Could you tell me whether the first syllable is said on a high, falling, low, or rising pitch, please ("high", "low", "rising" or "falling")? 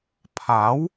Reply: rising